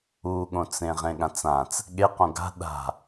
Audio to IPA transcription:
uɠõt͡sẽ ʁẽɠãt͡sãt͡s | ɠeqõ ɡa̤ ɗa̤

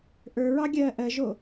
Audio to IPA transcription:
ʔə˞ɹɑ ɡʲɜːʔɜʒo

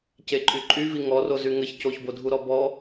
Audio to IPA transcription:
ceǃʼyǃʼyvi ŋɔro zyŋəç coçbodʱuɾɔ bɔ

